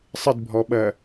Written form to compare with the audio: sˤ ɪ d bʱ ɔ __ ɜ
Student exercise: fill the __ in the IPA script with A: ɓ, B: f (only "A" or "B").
A